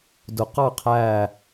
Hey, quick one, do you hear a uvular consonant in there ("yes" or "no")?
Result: yes